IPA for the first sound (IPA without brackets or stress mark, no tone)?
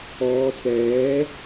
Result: ɔː